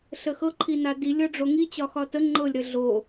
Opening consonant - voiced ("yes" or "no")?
no